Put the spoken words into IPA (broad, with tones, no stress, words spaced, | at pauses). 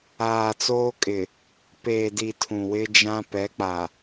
aː˨t͡soː˦kʼɪ˨ | peː˨di˨ tʰũ˨wɪ˦d͡ʒã˦ pɛ˨˦k͡pa˨